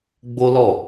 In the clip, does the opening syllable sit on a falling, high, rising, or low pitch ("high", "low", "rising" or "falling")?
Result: high